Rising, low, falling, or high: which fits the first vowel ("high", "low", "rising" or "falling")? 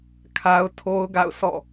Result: high